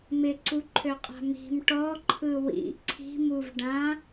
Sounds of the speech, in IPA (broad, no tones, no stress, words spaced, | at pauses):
mɪǀuǃʰøqʼa̤ mi̤m ʈɔ ǃʰɯwḭ ǀʰi̤muv ɖã